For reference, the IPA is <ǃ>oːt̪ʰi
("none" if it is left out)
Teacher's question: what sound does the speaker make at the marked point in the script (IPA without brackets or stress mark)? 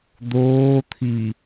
d̪